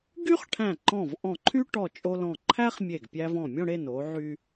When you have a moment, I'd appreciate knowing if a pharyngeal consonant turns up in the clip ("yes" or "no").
yes